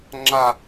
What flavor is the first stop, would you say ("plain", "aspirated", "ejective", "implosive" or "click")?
click